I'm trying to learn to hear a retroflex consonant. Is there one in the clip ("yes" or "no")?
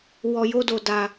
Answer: no